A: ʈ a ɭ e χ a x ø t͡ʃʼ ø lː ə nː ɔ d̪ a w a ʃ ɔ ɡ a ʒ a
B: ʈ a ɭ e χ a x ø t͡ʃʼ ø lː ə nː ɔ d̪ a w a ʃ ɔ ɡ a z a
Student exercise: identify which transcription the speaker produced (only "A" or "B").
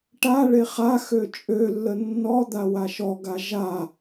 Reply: A